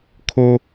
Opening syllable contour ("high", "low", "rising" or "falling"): high